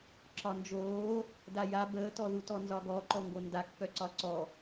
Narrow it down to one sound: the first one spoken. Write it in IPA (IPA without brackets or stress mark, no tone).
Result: ǁ